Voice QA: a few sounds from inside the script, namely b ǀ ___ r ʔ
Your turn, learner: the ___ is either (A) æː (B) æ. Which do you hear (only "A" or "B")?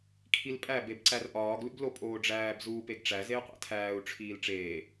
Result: B